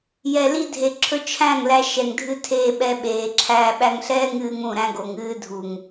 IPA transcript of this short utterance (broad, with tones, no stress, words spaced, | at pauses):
jɛ˨li˧dʱe˨ǁʰɵ˧ t͡ʃʰæ̃˦˨ŋlæ˧ ʃɛ˨ŋdʱɨ˧ tʰeː˧ɓɛ˧ɓeː˨ǁʰæː˧ ɓæ˧ŋɬɛː˦ŋɨː˧ŋ ũ˦˨ ɾæ̃˦ɡo˨ŋɨː˦ dʱu˨ŋ